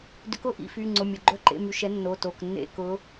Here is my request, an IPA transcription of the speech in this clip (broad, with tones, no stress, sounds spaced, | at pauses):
d ʏ˨˥ k ʊ˦˨ ʔ ḭ˦˨ f y˩˧˩ ŋ͡ǀ ʊ˩˧˩ mʲ ʊ˩˧˩ ɡ͡ǃ œ˦˨ ǃ ḛ˦˨ m y˩˧˩ ʃ ɛ˨˥ nː o˩˧˩ t o˩˧˩ k nː ḛ˦˨ k ʊ˨˥